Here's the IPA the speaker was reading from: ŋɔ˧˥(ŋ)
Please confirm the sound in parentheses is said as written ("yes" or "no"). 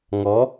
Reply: no